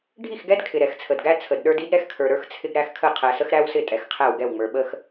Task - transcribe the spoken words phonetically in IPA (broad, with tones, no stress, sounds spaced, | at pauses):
ɖʱ i˦˨ x ɡ ɛ˦ d kʰ ɪ˨ ɾ ɛ˨ x t͡sʰ ə˨ d ɡ æ˦ t͡sʰ ə˨ d ɗ ə˞˦ d i˦ d ɾ ɛ˦ x kʰ ə˞˨ ɾ ə˞˦ x t͡sʰ ɪ˦ ɡ ɾ æ˦ x kʰ ə˦˨ qʰ æ˨ s ə˦ x ɾ æ˦ w s ɪ˦˨ tʼ ɛ˨ x qʰ æ˦˨ w ɡ ɛ˦˨ w ŋ͡m ə˞˨ ɓ ə˦ x